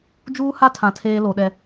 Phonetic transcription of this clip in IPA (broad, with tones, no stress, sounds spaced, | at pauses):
d͡ʒ uː˦ h a˦ tʰ ã˨ tʰ eː˦ l o˨ ɗ ɛ˨